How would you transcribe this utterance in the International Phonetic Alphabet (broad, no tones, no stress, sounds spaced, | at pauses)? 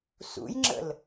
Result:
s ṵ j ŋ͡ǁ ə̰ l